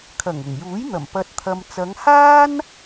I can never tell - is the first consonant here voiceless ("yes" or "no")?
yes